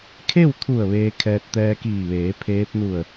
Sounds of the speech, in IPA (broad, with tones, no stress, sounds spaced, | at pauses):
kʰ e˥˨ w t̪ʰ u˧˩ ə̯ ʋ eː˧ kʰ ɛː˧ t̚ t̪ ɛː˧ k iː˧˩ ʋ eː˩˧ pʰ eː˧˥ p̚ n u˧˩ ə̯